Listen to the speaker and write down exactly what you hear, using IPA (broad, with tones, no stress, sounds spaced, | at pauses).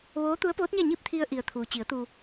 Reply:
ʋ oː˧˥ t̪ u˧˥ ə̯ p oː˧˥ t̚ ɲ a˥˨ ɲ i˥˨ p̚ t̪ʰ i˧ ə̯ ʔ i˩ ə̯ t̪ʰ uː˩ t͡ɕ i˩˧ ə̯ t̪ uː˩